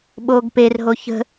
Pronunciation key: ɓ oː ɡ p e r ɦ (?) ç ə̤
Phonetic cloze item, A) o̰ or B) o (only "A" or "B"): B